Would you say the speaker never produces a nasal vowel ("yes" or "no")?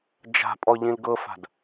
no